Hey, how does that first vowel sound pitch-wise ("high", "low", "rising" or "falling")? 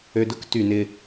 low